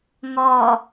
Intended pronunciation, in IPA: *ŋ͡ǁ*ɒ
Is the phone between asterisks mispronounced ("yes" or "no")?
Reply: yes